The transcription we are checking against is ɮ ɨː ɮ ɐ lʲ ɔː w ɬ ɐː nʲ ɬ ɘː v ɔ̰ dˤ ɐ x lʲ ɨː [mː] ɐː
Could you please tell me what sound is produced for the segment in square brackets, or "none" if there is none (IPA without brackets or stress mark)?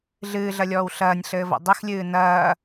n